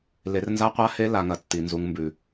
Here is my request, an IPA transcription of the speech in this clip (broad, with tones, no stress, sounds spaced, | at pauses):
l e˨ r n z a˧ qʷ a˧ h e˧ l a˨ ŋ ɐ˨ tː i˨ n z u˨ ŋ m b ʉ˨